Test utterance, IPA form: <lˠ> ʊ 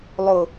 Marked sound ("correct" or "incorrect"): correct